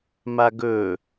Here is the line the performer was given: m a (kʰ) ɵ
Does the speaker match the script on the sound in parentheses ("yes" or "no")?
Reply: no